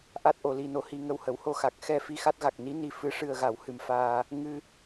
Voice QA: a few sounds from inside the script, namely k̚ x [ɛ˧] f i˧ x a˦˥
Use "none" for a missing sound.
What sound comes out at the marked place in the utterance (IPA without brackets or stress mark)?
ɛ˧